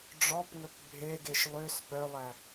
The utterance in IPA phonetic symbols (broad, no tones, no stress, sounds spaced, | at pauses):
ɖ͡ʐ ɔ p ŋ ɵ p bʱ e ɡ e ʃ lˠ ø s p œ lˠ æ